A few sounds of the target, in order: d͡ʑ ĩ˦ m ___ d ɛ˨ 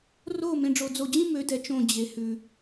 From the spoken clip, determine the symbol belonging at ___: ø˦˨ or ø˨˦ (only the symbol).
ø˨˦